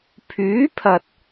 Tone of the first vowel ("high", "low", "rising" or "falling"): rising